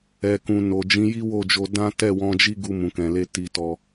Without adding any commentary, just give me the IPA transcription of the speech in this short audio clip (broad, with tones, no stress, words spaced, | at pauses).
ɛ˨kũ˨ no˨ d͡ʒĩ˨˦ji˦wo˦˨d͡ʒo˧ dã˦ tɛ˦˨wɔ̃˧d͡ʒi˦ ɡu˧mũ˨kɛ̃˨le˧ ti˧tɔ˧